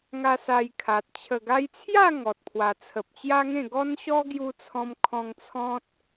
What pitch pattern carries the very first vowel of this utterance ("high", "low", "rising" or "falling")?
high